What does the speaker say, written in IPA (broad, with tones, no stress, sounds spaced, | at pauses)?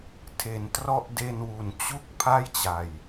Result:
tʰ e˩˦ n t r ɔ˦˥ ʔ d e˧ n w u˨˩ n t͡ɕ u˦˥ k̚ pʰ a˥˩ j t͡ɕ a˨˩ j